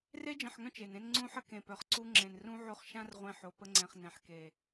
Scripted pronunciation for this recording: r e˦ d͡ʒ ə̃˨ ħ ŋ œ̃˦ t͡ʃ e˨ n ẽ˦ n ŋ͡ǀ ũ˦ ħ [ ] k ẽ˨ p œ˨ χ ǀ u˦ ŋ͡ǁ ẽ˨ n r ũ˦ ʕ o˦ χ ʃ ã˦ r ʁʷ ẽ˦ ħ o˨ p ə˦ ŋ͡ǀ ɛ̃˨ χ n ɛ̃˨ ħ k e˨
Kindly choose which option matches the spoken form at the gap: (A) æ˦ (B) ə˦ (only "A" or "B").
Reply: B